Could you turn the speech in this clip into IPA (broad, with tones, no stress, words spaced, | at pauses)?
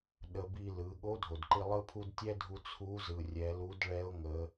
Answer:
ɗə˧ bi˧lɯ˩˧ ɠo˧˥dʱo˩dǃi˧ lˠɯ˥pʰu˥d tʲɛ˥dʱu˧ t͡sʰu˧˥zɯ˩ rʲɛ˩˧lu˧˥dɭɛ˧˥ʊ̯ ŋə˩˧